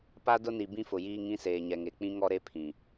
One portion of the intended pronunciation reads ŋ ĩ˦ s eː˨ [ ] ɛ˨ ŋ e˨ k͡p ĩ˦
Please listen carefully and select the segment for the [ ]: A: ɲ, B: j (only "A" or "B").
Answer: A